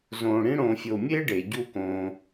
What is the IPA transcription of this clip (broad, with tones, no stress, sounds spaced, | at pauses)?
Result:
z õː˨ ɽ ĩ˦ ɽ õː˨ fʲ o˨ mʲ eː˦ ɖ e˩ ɟ u˨ k õː˩